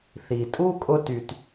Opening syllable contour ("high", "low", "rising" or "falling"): low